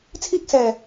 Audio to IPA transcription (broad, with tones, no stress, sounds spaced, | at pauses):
t͡sʰ iː˥ k̚ s ɛː˨˩